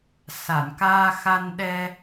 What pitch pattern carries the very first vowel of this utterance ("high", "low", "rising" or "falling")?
low